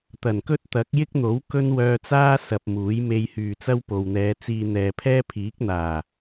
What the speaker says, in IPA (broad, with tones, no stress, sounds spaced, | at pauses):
t̪ ɐ˨˩ n k ɵ˥ t̚ t̪ ɐ˨˥ k̚ j ɪ˥ k̚ n̪ o˨˥ w k ɵ˥ n w œː˧ t͡s aː˥ s ɐ˧ p̚ m uː˨˥ j m e˧ j h yː˨ t͡s ɐ˥ w p o˨ w n̪ ɛː˨˧ t͡s iː˧ n̪ ɛː˨ pʰ ɛː˥ pʰ iː˨˥ k̚ n̪ aː˨˩